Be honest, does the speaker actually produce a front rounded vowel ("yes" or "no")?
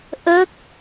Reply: no